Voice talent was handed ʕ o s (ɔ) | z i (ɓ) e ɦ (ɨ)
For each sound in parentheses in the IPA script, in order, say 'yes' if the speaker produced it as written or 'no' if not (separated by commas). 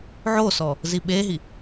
yes, yes, no